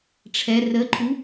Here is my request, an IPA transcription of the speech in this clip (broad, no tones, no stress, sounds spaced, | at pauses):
ʈ͡ʂʰ ɛ r ə ǃʰ u